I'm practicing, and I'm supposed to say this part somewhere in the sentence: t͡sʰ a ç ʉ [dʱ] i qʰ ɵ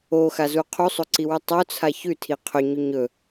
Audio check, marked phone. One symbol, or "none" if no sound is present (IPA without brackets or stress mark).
tʰ